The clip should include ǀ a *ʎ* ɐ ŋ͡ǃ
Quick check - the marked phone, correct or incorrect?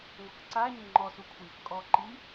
incorrect: ɲ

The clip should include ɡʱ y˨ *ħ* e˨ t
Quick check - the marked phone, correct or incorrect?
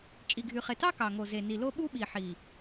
incorrect: χ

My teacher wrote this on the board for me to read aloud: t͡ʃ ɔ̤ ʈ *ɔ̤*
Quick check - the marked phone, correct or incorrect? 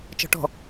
correct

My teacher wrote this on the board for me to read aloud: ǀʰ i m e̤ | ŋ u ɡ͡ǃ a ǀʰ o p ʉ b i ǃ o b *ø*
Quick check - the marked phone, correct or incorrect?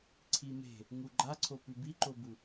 incorrect: u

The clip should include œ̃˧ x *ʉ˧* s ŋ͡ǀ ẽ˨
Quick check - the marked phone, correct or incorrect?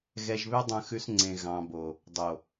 correct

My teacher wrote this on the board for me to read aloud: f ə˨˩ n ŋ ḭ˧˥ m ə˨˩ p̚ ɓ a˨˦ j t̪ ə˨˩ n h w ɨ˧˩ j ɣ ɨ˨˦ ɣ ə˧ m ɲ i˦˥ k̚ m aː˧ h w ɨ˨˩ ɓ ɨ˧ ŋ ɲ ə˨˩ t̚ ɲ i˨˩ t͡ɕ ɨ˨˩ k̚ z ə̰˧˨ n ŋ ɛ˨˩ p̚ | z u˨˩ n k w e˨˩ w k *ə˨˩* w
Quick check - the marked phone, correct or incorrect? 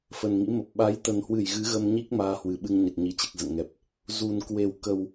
correct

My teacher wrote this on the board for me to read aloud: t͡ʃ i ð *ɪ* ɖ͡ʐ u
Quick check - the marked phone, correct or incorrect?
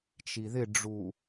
correct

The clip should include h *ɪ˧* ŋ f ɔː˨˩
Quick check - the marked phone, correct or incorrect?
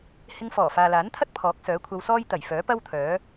correct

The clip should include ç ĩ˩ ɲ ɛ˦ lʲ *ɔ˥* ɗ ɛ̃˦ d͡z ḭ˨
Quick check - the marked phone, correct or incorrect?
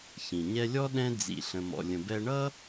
correct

